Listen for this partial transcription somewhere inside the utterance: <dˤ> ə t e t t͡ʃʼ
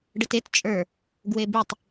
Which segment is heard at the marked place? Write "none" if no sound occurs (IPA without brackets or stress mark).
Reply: ɖ